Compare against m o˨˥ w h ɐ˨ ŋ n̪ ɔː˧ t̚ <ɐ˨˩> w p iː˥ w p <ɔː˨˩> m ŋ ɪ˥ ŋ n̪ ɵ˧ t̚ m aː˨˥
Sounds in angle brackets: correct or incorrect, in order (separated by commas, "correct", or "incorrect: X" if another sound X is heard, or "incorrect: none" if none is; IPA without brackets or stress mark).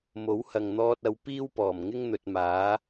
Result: incorrect: ɐ˨˧, correct